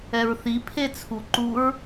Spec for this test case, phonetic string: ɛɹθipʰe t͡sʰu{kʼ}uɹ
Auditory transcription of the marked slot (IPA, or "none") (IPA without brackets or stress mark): ǃ